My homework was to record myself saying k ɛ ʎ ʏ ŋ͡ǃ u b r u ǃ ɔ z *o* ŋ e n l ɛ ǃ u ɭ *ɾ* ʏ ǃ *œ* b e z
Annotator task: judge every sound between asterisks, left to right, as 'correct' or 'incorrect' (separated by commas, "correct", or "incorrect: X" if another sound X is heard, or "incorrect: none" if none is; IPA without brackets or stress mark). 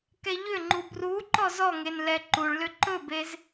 incorrect: ɔ, incorrect: l, incorrect: ɵ